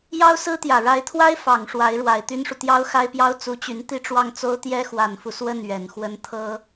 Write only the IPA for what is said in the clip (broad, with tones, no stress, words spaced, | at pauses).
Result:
jɑ˥ʊ̯sɹ̩˥t̪jä˨˩ ɻa˧˥ɪ̯t̪ʰwa˥ɪ̯ fɑ˨˩ŋʂwa˧˥ɪ̯ ɻwa˨˩ɪ̯t̪y˥nʂu˨ t̪jɑ˥ʊ̯xa˥ɪ̯pjɑ˥ʊ̯ t͡su˧˥t͡ɕy˧˥n t̪i˥˧ʈ͡ʂwɑ˥˩ŋt͡so˥ʊ̯ t̪jɛ˥xwa˨˩nfu˦ swə˥˩n ɥɛ˨˩nxwə˥n t̪ʰɤ˥